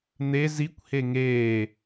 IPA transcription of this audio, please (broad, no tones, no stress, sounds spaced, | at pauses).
n̪ e z i kʷ h e ŋ eː